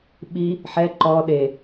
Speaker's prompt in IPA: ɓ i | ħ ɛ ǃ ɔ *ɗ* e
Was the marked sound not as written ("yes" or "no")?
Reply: no